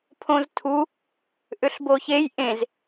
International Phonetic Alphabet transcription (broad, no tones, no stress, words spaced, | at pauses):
pʰõztʰu | ʔʏɬboçej ʔẽz